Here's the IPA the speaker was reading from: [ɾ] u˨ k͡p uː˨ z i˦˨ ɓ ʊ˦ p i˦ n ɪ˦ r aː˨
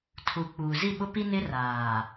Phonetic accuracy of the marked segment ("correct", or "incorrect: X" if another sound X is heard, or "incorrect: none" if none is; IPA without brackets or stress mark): incorrect: tʰ